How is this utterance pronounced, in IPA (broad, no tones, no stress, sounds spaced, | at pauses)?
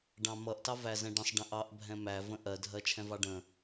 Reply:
ɖ ɑ̃ m ʌ ʔ t ɑ v æ z ɛ̃ ɖ ə̃ sˤ ɖ ə̃ ʔ ɑ ʔ bʱ ɛ̃ m æ v ə̃ ʔ ɜ dʱ ɜ t͡ʃʰ ɛ̃ v ɑ ɖ ə̃